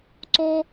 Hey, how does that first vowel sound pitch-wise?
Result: high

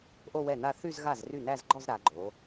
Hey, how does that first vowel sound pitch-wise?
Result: falling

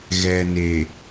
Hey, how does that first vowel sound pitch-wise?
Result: low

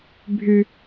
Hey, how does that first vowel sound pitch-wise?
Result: high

